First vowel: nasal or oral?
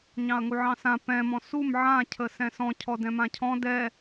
nasal